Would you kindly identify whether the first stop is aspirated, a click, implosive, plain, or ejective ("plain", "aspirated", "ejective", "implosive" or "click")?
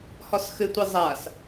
plain